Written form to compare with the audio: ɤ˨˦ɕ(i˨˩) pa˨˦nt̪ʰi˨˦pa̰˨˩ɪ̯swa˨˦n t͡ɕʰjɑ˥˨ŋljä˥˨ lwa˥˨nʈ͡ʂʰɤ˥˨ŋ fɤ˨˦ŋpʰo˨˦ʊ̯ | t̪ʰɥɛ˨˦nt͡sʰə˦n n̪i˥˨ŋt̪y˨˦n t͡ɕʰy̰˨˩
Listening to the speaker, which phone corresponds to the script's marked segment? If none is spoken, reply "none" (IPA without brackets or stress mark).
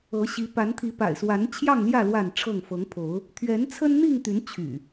i˨˦